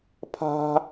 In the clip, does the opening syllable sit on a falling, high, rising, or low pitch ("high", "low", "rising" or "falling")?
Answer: high